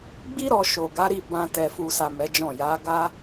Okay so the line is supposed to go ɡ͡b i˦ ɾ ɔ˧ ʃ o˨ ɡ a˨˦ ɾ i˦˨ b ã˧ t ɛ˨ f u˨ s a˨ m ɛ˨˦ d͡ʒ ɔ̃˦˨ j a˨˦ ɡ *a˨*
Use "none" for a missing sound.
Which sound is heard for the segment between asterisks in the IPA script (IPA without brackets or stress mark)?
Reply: a˦